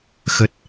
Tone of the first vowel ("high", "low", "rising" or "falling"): low